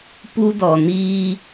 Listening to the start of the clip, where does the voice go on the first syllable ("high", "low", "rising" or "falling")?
high